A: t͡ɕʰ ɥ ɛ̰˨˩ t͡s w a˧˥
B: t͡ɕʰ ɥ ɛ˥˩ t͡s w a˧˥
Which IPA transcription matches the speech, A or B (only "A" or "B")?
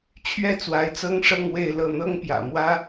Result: B